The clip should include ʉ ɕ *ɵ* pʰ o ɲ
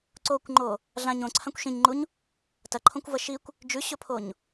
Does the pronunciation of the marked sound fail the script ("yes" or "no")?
no